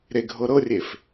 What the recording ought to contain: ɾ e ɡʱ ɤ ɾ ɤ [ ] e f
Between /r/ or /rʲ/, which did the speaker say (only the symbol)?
rʲ